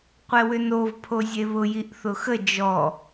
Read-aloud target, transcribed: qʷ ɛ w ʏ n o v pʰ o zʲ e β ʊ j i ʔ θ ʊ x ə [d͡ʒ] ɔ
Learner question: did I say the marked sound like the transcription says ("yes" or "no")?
yes